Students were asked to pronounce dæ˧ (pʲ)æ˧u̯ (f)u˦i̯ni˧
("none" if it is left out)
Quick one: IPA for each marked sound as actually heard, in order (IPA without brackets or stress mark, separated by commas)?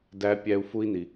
pʲ, f